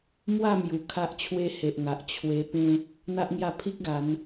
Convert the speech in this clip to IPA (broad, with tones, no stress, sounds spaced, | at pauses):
m w a˥˧ m j u˨˩ kʰ a˦ ʔ t͡ɕʰ w e˦ h e˨ ʔ ŋ a˨ ʔ t͡ɕʰ w e˧ p ẽ˦ | n̪ a˦ ʔ ŋ j a˥˧ pʰ i˦ k̚ ɡ a˨˦ n